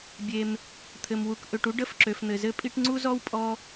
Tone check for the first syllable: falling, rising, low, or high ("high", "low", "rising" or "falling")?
low